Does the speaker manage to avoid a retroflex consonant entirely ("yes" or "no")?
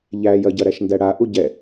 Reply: no